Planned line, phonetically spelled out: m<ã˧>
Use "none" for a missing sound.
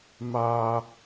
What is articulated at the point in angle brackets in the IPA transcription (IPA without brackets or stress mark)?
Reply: a˧